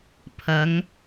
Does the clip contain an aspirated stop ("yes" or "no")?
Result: yes